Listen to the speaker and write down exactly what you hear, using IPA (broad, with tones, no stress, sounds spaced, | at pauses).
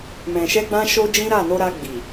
m ɛ̃˧ ʃ ɛ˦ ɡ͡b ã˦ ʃ o˦ d͡ʒ ĩ˦ ɾ a˦˨ n o˧ ɾ a˧ ɡ͡b i˨